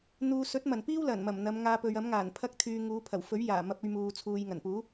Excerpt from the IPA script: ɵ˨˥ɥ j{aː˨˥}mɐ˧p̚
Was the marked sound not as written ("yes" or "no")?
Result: yes